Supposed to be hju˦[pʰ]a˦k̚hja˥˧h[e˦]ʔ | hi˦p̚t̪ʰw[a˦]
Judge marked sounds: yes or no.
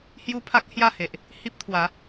yes, no, no

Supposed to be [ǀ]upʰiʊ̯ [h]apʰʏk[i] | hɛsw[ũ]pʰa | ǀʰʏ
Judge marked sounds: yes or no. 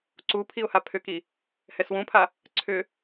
yes, yes, yes, yes

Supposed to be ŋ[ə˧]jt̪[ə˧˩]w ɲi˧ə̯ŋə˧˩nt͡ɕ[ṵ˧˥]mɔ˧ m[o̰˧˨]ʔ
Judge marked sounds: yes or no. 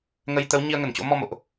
yes, no, no, yes

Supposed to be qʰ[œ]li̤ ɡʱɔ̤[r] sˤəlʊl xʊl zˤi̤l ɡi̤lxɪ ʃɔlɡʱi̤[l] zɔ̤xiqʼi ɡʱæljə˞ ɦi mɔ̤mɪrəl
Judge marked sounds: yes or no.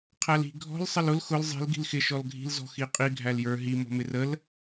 no, no, yes

